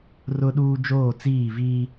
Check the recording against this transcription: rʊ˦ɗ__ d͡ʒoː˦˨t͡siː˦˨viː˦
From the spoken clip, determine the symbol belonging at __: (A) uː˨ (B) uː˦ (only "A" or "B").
B